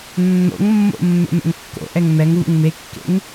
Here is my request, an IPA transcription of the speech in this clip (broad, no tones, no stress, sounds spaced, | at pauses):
nː o̰ ŋ mː o̰ mː ɛ̰ m ɛ̰ ŋ kː o̰ ʔ ɛ ŋ m ɛ ŋ v ṵ ŋ m e kː ḛ ŋ